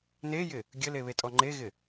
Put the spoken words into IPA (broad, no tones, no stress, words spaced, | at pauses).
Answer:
nejɪ | ɡʲəleβetʼɔ ŋ͡ǃeɣɪ